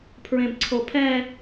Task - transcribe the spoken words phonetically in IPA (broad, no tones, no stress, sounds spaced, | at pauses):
pʰ ɹ ẽ b ǀʰ o pʰ ɛ